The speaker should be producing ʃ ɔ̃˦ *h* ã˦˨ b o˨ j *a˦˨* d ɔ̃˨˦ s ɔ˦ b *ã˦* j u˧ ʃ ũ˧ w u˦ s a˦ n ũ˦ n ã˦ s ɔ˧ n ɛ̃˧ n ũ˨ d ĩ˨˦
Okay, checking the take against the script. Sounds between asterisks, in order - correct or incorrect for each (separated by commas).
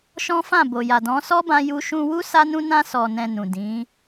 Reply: incorrect, incorrect, correct